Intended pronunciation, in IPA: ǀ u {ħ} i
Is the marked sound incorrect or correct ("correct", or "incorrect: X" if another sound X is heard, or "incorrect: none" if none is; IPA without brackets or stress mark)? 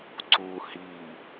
incorrect: h